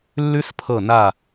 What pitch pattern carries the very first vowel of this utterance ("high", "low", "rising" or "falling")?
high